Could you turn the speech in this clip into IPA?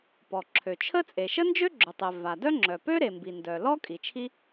p ɔ˩ ǁʰ ø˩ t͡ʃʰ ə˥ t͡sʼ e˩ ʃ ə˥ n d͡ʒ ø˥ ɡ͡ǁ ø˩ tˤ e˩ v a˩ d œ˥ ŋ͡ǁ œ˩ p ø˥ ɾ e˩ m b i˩ n d œ˩ l ɔ˥ kʼ i˩ t͡ʃʰ i˥

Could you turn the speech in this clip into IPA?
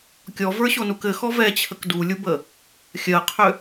kʲ ɔ v ə˞ ɕ o n u k ɘ x ɔ v ɛ t͡ɕʰ ə k d u lʲ u b ə | xʲ ɜ qʰ ʏ

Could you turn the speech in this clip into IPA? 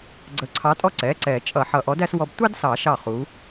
ɡ͡ǀ ə˨˩˦ ǀʰ ɑ˨˥ tʼ ɔ˦ ǀ ɛ˩˧˩ ǀ ɛ˨˩˦ t͡ʃʼ ʌ˨˩˦ ħ ʌ˧˩ ʔ ɔ˨˥ d æ˦ s w ɔ˦ b tʷ ɑ˦ d s ɑ˨˩˦ ʃ ɑ˧˩ χ u˨˥

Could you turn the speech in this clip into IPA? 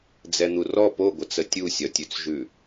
d͡z ɛ n̪ u r ɔ p o ɡʷ ə t͡s ə tʲ u sʲ ɒ tʲ ʉ t͡s ʒ ʉ

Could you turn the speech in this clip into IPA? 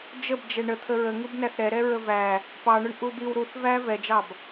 d͡ʒ ə b d͡ʒ ɛ ɳ ə t̪ʰ ə ɹ ə ŋ u b n æ θ ɾ ɛ ɾ ɛ ɹ ə v æ | p ɑ ɳ ʊ ɳ ʔ u d̪ i w ɾ u θ v æ v ɛ d͡ʒ ɑ b

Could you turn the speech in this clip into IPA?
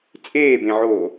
t͡sʼ eː b ẽ ʕ oː

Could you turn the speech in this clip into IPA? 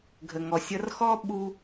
ɡʱ ə˩ ŋ ɔ˩ sʲ ʌ˧˥ r x ɔ˥ ɓ u˧

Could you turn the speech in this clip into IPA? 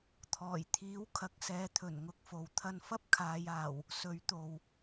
t̪ʰ ɔː˨˩ j t̪ʰ iː˨˥ w kʰ ɐ˨˥ k̚ s ɛː˨˧ t̪ʰ ɵ˨˩ n ŋ ʊ˧ k̚ f o˨ w t̪ʰ ɐ˧ n f ɐ˥ p̚ kʰ aː˨˧ j aː˨˩ w | s ɵ˨˥ ɥ t̪ o˨ w

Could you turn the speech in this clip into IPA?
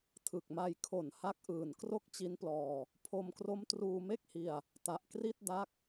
tʰ ɯ˨˩ k̚ m a˧ j kʰ o˩˦ n h a˦˥ k̚ ʔ ɯː˨˩ n k r o˥˩ k̚ t͡ɕ i˦˥ n p l ɔː˧ | pʰ o˧ m k r o˦˥ m t r uː˧ m e˥˩ k̚ h i˧ a̯ | t a˨˩ ʔ k r i˥˩ t̚ d a˦˥ k̚

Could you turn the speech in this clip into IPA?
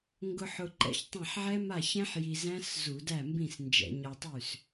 ŋ ɡ ʊ˧ ħ ʊ˧ ǃ ɛ̰˧ ç tˤ ã˥˩ ħ ʕ ɛ˦˥ m a˥˩ ç ɛ̃˦˥ ħ j i˧ z æ̃˦˥ s z u˧˩˧ d æ˥˩ m b ĩ˥˩ s n d͡ʒ ɛ̰˧˩˧ ɲ ɔ˧ tˤ ʉ˥˩ s

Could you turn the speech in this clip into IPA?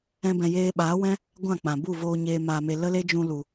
ɛ̃˧ b ɛ̃˨ j eː˧ ɓ aː˨˦ w ɛ̃˦ | ɡʷ ã˦˨ k͡p ã˨ b u˦˨ v oː˧ ɲ eː˨ m aː˨ m e˨ l ə˦ l e˦ d͡ʒ ũ˧ l u˨

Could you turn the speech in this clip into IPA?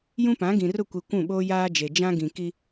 j ũ˦ p ã˨˦ ɡ ĩ˨ r ʊ˦˨ kʷ i˨ kʷ ũ˦˨ ɓ oː˦ j aː˦ d͡ʒ e˨ d͡ʒ ã˦ ɡ ĩ˨ k i˦

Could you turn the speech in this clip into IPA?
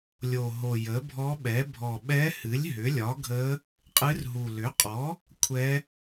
lʲ o˨˩ ɦ o˨˩ j ə˩˥ bʱ ɔ˧˥ ɓ ɛ˩˥ bʱ ɔ˨˩ ɓ ɛ˧˥ h ɨ˩˥ lʲ ɦ ʏ˩˥ lʲ ɒ˩˥ ɡʱ ə˧˥ | qʼ ɨ˧˥ r ɦ u˨˩ l ʏ˩˥ qʼ ɔ˩˥ | kʷʰ ɛ˧˥

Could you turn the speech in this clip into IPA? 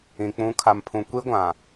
ĩ˨ k͡p ũ˨˦ kʰ a˨ m pʰ ũ˨ kʷ i˦ ɡʷ ã˨

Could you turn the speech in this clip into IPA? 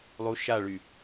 lˠ u ʃ a ɭ y

